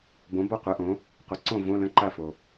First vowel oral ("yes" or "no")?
no